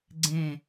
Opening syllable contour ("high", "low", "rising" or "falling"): low